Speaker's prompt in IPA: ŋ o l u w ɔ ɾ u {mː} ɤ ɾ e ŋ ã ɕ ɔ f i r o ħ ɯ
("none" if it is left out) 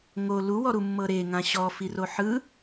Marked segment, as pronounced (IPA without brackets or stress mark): mː